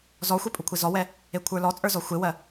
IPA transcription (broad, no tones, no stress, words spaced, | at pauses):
zɔxʷe pʼukʷʰezɔwɛ | ekʷʰə˞lɔt͡sʼə˞ zɔxʷewɜ